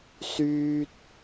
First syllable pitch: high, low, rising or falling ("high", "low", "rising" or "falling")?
high